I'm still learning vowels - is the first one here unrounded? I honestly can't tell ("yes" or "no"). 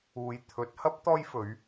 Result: no